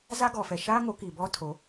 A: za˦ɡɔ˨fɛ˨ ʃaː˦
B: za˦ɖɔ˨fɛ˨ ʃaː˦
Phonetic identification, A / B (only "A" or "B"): A